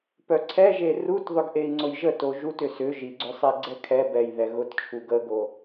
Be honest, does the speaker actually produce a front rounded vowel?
yes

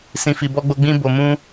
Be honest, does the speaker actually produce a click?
no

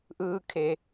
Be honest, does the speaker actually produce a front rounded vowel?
no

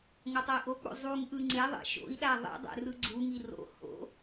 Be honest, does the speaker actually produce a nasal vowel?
no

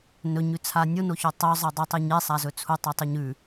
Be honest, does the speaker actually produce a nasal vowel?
no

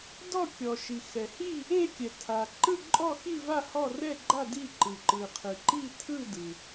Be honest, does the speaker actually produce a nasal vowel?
no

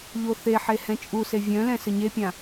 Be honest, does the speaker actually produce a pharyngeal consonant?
yes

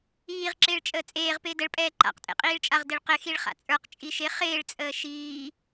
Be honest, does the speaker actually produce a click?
yes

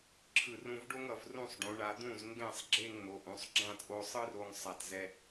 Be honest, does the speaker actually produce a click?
yes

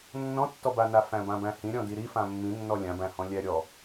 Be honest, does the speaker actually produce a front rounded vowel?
no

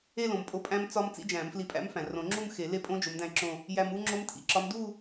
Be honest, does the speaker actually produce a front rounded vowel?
no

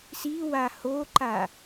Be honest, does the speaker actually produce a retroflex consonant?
no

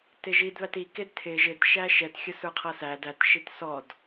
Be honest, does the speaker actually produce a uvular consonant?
yes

